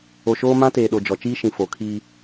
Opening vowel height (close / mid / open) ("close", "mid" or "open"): mid